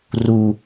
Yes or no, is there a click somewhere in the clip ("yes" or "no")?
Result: no